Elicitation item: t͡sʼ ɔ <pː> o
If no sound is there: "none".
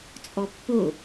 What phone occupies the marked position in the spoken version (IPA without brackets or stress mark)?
pː